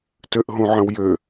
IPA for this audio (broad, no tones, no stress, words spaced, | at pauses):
tøʔɦũʕə̃wjø